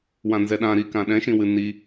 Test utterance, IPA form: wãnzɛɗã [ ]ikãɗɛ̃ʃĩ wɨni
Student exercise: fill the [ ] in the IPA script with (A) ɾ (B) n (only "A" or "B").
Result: A